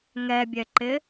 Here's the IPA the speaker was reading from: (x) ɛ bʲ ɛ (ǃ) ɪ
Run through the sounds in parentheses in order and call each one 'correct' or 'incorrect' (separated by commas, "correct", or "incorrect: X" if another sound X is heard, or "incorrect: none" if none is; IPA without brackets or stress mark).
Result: incorrect: ŋ, correct